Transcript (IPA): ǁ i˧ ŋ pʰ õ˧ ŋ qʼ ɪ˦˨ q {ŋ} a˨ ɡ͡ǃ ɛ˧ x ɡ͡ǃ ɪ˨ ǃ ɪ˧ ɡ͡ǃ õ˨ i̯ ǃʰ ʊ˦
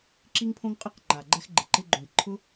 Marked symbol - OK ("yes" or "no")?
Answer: no